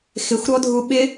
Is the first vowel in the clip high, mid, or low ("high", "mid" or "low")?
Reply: high